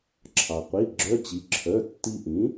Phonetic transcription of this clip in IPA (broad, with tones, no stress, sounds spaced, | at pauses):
ǁʰ ɑ˩ qʷ i˩˧˩ ɡ͡ǁ œ˧˥˧ t͡ɕ i˩˥ ǁʰ œ˩˧˩ tː i˧ ʔ ĩ˩˥